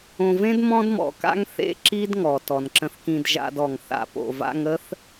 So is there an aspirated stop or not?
no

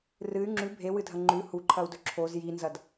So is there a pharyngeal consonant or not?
no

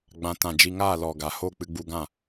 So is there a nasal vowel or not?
yes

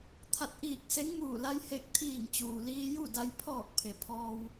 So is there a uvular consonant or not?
no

